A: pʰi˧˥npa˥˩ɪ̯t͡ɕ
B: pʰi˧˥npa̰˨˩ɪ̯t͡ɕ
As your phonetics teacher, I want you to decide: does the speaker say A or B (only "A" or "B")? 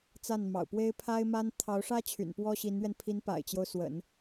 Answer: B